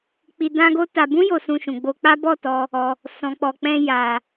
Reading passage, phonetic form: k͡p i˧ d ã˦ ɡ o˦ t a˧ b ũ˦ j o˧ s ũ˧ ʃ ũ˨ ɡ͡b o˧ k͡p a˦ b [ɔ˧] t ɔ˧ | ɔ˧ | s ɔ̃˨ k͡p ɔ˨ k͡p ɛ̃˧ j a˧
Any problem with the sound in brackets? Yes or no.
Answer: yes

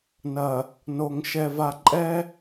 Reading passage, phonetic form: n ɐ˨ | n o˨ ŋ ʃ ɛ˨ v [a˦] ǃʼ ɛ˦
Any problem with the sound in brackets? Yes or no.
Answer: yes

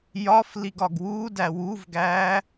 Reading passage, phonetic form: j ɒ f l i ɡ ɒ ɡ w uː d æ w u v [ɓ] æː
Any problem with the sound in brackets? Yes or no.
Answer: yes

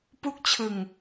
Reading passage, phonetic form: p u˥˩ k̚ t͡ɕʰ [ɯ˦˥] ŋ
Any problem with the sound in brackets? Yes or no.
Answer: yes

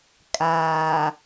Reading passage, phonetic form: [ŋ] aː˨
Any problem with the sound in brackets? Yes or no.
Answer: yes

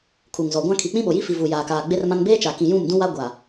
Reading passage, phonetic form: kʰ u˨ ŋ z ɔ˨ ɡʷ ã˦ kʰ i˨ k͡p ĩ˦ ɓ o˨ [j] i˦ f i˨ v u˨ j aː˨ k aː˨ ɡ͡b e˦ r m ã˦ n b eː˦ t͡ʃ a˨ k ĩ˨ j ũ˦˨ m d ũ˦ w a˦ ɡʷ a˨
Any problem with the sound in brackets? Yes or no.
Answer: no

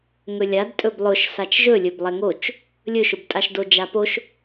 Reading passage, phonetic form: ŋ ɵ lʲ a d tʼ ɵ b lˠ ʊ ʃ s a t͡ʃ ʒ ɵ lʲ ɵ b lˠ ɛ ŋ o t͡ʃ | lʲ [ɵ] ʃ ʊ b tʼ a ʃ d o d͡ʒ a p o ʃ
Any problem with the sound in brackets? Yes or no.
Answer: no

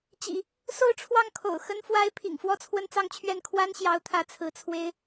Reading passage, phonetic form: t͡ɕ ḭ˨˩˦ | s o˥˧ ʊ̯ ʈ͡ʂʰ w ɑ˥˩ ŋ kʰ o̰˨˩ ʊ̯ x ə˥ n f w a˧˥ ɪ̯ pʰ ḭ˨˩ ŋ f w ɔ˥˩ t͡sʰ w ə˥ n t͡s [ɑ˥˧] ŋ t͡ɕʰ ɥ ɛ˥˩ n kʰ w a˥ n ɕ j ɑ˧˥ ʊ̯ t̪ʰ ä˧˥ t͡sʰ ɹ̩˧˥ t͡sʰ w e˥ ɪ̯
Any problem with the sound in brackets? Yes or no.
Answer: no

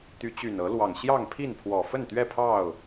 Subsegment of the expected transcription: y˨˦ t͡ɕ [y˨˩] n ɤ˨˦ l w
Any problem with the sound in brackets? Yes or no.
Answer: no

